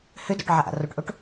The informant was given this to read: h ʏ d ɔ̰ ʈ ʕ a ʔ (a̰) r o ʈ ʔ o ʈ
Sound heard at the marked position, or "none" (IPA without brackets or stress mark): a̰